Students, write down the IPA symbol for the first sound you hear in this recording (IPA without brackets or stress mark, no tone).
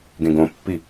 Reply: ɡ